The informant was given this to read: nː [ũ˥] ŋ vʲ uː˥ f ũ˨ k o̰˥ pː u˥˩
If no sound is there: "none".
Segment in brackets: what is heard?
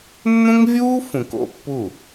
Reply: ũ˥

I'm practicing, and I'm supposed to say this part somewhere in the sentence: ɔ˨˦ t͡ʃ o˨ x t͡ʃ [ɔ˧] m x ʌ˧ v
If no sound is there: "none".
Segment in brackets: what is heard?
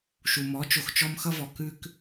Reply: ɔ˧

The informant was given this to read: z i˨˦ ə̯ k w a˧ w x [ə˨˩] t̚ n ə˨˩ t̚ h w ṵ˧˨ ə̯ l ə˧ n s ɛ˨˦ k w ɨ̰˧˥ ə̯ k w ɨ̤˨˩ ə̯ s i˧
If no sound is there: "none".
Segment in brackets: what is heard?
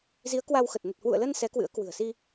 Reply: ə˨˩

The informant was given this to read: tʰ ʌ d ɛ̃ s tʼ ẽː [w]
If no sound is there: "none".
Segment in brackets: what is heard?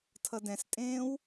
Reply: w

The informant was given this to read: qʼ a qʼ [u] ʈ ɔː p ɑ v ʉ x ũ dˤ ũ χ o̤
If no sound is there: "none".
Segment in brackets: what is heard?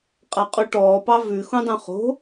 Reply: u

